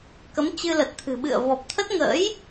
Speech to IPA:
k ə˨˦ m t͡ɕ ɨ˧ l ə˨˩ t̚ t̪ʰ ɨ̤˨˩ ɓ ɨ̰˧˨ ə̯ v ɔ˨˩ p̚ t̪ʰ ə˦˥ t̚ ŋ ə̰ː˧˥ j

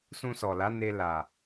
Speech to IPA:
s ũ˧ s ɔ˨ l a˨˦ n e˧ l a˨

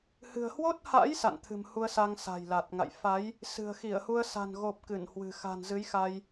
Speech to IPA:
h ɨ̤˨˩ ə̯ h w o˦˥ t̚ h a̰˧˥ j s a̰˧˨ n t̪ʰ ɨ̤˨˩ m h u˧ ə̯ s a˧ ŋ s a̤˨˩ j l a˨˩ t̚ ŋ a̰˧˨ j f a˨˦ j | s ɨ̤˨˩ ə̯ x i˧˩ ə̯ h u˧ ə̯ s a̤˨˩ n ɣ o˨˩ p̚ k ɨ˧˩ n h w ɨ̤˨˩ x a̤˨˩ n z ɨ˨˦ j x a˧ j

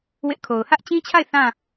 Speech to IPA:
w ɪ˦ ʔ kʰ o˨ ʊ̯ h ä˦ ʔ t͡ɕ ĩ˦ t͡ɕʰ a˦˨ ɪ̯ θ ã˦˨

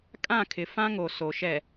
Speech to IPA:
kʼ ã˦˨ kʰ ɪ˨ f ã˦ ŋ o˨ s o˨ ʃ ɛ˨

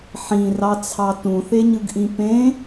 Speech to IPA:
ħ ĩ r ɑ t͡sʰ ɑ t ũ θ e ɲ ɯ ɡ ʔ ĩ p ẽ

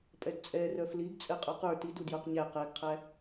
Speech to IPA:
pʼ ɛ d t͡sʼ ɛ r œ f l i ɡ t͡sʼ ɛ qʼ œ q ə˞ t i d u d j œ q ɲ æ q ɛ ɡ qʰ æ

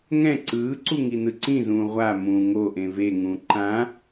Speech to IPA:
ŋ ɛ̃ ǀ ɯː ǀ u ŋ i n ɯ ǀ ĩ z ũː ʁʷ a m ũ ŋ o ʔ ẽ v e ŋ ũː ǃ ã

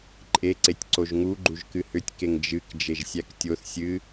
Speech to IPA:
ǃʼ e ǀ e tʲ ǀ o ʒ ŋ u ɡ͡ǃ u ʒ k ɨ h ʏ tʲ k e ŋ d͡ʒ ɨ k d͡ʒ e ʒ sʲ æ k tʲ o θ sʲ ɨ

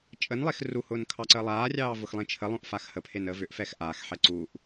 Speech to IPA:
t͡ʃʼ ə n lˠ e x r u h ʊː n kʰ ɑ ǀ əː lˠ aː rʲ ɑː v ʊ x lˠ ẽ t͡ʃʰ ə lˠ õ ʔ f a x h ə pʰ e n əː v ʏ ʔ f ɛ x ʔ aː x ħ ɛ ǀ uː ʔ

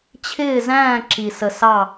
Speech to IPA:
t͡ɕʰ ɪː˥˧ z æ̃ː˥˧ ǁ i˧ s ə˧ s ɑ˥˧

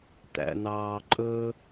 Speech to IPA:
t̪ æ̰ n̪ ɑː ǃʼ ɵ

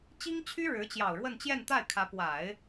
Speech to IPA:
t͡ɕ i˥ ŋ t͡ɕʰ y˥ ɻ ɻ̩˧˥ t͡ɕ j ɑ˨˩ ʊ̯ ɻ w ə˥˧ n t͡ɕ j ɛ˥˧ n t̪ a˥˩ ɪ̯ kʰ ä˧˥ p w a˨˩˦ ɪ̯

